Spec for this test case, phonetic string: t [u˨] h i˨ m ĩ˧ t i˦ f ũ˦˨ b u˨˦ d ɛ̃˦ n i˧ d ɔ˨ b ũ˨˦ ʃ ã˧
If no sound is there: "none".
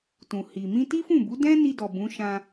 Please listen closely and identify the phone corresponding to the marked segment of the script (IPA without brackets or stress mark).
ũ˨